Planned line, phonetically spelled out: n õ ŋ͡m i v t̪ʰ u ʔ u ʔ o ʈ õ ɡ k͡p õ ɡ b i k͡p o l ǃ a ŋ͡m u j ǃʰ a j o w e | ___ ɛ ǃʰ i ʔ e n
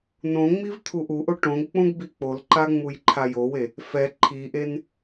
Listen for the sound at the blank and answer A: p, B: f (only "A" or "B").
B